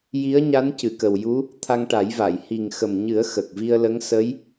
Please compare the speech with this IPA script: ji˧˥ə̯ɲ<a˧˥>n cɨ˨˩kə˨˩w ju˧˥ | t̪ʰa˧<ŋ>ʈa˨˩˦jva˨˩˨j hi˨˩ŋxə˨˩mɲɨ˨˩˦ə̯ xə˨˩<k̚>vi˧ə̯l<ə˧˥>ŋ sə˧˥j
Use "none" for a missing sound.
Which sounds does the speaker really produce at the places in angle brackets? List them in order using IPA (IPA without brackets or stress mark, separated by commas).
a˧˥, ŋ, k̚, ə˧˥